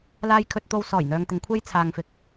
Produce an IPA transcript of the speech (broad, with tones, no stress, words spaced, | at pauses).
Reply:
laː˧jkʰɵ˧t̚t̪o˧w sɔː˨˩jn̪œː˨ŋt̪ɪ˨ŋkʷʰe˧j t͡sʰaː˨ŋfɪ˨k̚